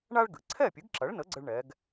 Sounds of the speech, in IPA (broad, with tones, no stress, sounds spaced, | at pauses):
ɳ a˥ ɭ ɡ ɨ˩ ǀʰ ɛ˥˩ pʲ ɨ˩˥ ɡ ǁ ɐ˩˥ ɭ n ə˩˥ ɡ͡ǀ ə˥ ɭ ɳ ɛ˩˥ ɡ